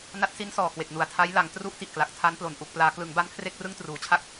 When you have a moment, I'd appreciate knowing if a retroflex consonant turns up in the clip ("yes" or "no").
no